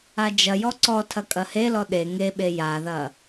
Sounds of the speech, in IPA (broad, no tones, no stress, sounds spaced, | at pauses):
a d͡ʒ ɐ j ɔ ǀ ɔ tʰ ɐ kʼ ɐ h e l ɔ ɗ e ŋ e ɓ e j a ð ɐ